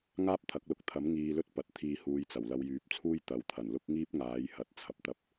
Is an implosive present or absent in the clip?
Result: absent